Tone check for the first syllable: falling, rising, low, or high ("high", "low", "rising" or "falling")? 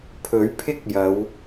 rising